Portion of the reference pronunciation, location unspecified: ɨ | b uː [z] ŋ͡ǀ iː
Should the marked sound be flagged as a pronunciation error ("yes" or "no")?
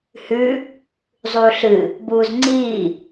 no